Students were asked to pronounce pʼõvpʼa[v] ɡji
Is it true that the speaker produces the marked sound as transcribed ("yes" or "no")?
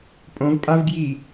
yes